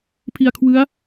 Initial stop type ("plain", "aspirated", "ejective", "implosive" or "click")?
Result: aspirated